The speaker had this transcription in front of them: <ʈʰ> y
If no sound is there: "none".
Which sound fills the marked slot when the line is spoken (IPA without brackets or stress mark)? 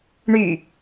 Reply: ɳ